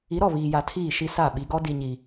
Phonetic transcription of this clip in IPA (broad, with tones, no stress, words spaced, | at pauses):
i˨˦ɾɔ˦˨ βiː˨ja˨tʰiː˦˨ʃi˦ sa˦˨ ɓi˨ɡɔ˦ di˦ɲi˦